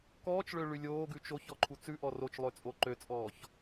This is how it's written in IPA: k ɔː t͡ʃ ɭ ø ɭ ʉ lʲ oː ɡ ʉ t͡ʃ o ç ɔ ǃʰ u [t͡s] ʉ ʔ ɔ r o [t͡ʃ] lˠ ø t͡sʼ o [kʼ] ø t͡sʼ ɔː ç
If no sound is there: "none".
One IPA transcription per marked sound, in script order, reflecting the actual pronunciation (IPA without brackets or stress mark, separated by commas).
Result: t͡s, t͡ʃ, ǃ